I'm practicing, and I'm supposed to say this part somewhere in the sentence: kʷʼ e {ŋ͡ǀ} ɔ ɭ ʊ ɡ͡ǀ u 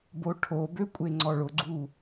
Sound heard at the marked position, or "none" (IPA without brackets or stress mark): ŋ͡ǀ